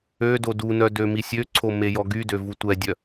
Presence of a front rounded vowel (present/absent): present